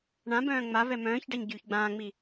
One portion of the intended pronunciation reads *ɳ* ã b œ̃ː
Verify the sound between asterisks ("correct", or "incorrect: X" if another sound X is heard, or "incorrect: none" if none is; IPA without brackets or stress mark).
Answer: correct